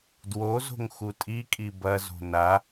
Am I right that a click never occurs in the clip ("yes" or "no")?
yes